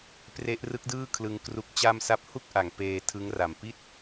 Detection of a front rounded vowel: absent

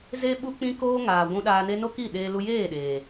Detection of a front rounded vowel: absent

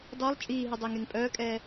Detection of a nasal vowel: absent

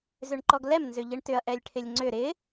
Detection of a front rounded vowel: present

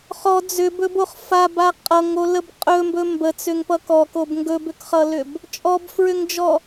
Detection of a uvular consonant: present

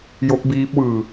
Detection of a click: absent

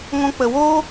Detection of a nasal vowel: present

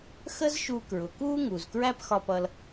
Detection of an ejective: absent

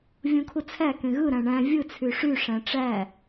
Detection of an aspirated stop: present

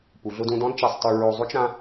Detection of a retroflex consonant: absent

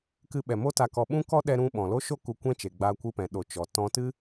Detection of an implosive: present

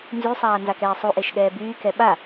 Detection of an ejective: absent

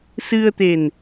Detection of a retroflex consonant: absent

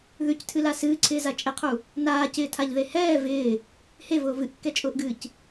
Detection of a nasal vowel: absent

